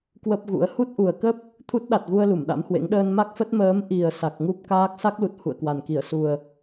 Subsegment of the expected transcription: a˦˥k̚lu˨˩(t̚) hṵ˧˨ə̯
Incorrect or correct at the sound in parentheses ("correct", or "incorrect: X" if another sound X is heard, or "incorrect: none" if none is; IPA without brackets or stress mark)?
correct